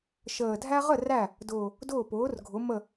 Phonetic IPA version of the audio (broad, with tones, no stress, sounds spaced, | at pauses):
ʃ əː˨˩ dʱ æ˥ ʁ ə˥˩ r æ˥˩ | d ʊː˨˩ | d ʊː˥˩ p ʊː˩˥ r ɡʱ ʊ˩˥ m ə˥˩